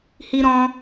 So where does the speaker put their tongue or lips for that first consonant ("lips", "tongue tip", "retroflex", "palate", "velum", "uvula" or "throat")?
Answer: throat